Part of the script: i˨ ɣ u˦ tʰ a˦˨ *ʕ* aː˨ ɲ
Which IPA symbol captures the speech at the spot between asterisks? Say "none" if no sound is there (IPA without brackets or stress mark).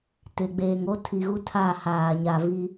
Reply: h